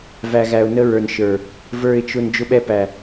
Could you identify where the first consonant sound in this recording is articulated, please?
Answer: labial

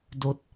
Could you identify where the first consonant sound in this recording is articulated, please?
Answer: alveolar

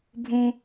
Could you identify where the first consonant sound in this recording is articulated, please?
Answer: labial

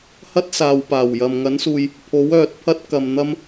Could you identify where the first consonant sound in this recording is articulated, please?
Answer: glottal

